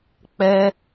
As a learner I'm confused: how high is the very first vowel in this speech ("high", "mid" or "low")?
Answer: mid